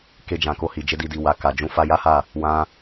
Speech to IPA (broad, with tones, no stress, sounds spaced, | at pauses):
k e˧ d͡ʒ ã˨ k o˧ h i˨ d͡ʒ e˧ d i˨ d i˨ w a˨ k a˨ d͡ʒ ũ˧ f a˧ j a˦ h a˦˨ | w ã˧